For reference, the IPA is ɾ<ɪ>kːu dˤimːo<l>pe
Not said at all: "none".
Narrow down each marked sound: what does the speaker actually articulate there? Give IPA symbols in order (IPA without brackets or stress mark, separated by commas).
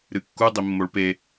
ɨ, ɭ